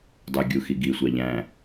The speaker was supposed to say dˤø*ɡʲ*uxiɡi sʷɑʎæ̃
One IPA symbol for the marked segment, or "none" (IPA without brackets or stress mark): ɡʲ